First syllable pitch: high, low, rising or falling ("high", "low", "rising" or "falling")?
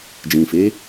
low